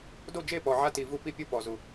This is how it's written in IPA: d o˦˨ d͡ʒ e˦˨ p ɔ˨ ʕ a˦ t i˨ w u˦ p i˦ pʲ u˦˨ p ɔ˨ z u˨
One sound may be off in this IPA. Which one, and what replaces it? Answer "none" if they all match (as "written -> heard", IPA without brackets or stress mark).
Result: w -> v